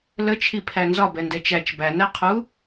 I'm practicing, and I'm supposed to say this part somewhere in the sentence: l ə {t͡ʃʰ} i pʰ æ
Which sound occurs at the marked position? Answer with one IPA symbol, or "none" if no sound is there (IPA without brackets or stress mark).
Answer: t͡ʃʰ